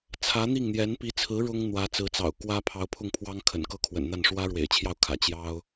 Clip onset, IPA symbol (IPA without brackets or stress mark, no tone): t͡sʰ